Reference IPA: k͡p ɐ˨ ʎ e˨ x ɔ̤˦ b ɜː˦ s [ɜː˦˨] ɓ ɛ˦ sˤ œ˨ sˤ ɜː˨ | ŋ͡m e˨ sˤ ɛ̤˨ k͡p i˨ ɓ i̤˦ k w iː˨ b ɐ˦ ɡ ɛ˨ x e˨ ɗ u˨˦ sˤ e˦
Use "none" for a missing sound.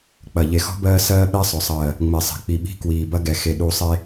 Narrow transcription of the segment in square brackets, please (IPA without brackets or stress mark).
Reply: ɜː˦